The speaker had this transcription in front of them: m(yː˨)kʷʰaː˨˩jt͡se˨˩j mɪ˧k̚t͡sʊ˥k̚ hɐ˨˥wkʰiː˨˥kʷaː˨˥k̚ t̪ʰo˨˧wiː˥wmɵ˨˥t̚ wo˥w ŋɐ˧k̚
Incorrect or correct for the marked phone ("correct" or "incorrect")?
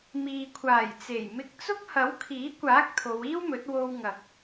incorrect